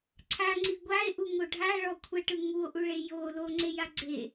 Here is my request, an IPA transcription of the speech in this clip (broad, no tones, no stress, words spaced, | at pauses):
ǀʰaŋ͡ǀi ɡʷae̯ʔuŋo ɖʱaɭɔ kʷʰɛʈɯ ŋuo̯ʔuɭe jo loŋ͡ǀeja ɡ͡ǀe